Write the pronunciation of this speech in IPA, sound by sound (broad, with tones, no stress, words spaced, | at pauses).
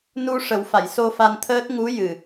nu˧ ʂə˨˩˦wfa˨˩˨jso˧ fa˧nt̪ʰəː˦˥t̚ ŋu˧˥ jɨ˨˩